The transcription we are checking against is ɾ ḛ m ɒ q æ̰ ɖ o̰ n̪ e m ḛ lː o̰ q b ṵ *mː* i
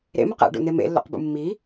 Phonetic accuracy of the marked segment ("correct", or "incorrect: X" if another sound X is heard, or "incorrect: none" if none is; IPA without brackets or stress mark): correct